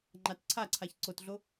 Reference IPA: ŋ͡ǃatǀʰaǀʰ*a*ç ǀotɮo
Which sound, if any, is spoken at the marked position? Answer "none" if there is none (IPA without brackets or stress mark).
a